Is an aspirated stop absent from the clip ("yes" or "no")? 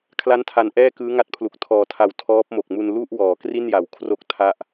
no